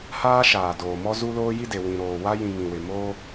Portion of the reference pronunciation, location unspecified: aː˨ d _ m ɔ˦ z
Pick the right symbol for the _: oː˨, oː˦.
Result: oː˨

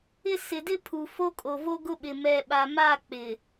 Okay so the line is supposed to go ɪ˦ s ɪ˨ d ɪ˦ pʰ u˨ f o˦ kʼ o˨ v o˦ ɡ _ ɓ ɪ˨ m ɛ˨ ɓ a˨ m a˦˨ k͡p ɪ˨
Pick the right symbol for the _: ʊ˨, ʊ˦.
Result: ʊ˦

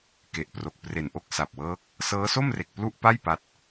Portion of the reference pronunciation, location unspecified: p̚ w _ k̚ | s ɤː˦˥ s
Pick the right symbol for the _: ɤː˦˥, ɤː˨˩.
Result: ɤː˦˥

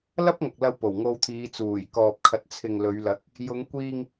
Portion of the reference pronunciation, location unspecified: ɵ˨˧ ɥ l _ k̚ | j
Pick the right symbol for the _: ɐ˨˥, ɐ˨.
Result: ɐ˨˥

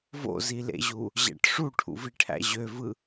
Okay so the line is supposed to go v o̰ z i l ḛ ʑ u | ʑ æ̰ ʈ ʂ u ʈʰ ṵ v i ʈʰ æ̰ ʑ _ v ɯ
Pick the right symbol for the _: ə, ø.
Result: ø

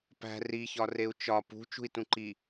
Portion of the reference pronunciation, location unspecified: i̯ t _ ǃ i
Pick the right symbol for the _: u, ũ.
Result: ũ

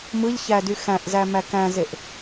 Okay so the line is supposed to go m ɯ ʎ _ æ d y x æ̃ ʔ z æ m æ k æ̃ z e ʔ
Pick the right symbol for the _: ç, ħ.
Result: ç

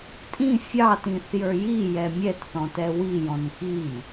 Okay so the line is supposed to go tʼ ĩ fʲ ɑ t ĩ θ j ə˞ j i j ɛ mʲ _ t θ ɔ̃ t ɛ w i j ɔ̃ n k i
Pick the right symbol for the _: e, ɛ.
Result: ɛ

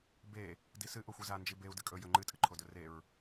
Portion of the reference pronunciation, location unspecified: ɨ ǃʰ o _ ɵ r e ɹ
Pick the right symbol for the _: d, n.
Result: d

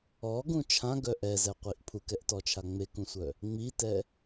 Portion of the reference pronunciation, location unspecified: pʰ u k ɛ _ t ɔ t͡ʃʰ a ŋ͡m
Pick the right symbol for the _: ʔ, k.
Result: ʔ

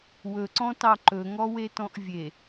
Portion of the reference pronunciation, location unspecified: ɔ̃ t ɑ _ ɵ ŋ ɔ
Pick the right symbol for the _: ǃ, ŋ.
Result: ǃ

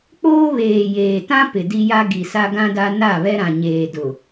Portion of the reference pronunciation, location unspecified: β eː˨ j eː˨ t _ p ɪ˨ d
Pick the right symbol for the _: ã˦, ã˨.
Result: ã˦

